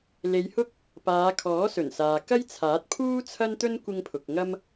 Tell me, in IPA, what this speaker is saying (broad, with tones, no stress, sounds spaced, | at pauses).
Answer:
l e˨˧ j h ʊ˥ k̚ | p aː˨˧ kʰ ɔː˨˥ s ɵ˨˩ n s aː˨ k ɐ˥ j t͡sʰ aː˨˥ t̚ pʰ uː˥ t͡sʰ ɐ˥ n t̪ ɵ˥ n kʷ ɪ˧ ŋ pʰ ʊ˨ k̚ ŋ ɐ˥ m